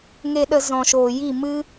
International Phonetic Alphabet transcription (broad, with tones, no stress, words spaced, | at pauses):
ŋe˨ɗə˨ zɔ̃˨ʃoː˨ji˦˨ mɨ˧